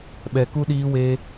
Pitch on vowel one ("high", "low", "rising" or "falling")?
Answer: low